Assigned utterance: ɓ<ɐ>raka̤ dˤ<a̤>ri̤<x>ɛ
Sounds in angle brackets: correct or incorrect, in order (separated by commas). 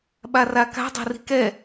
incorrect, correct, incorrect